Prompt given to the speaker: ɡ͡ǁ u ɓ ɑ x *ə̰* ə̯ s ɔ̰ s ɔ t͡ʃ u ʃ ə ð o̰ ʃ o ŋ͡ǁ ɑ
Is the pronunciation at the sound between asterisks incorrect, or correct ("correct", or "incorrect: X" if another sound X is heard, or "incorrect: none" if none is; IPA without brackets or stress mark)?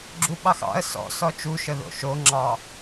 incorrect: ɑ̰